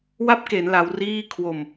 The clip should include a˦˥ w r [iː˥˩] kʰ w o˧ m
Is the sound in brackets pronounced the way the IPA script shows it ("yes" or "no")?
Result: yes